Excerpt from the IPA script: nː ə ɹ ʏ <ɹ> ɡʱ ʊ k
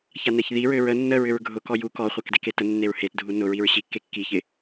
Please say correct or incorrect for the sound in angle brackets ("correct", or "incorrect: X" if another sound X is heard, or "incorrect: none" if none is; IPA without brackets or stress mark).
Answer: correct